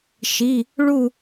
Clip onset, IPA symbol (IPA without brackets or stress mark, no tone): ʃ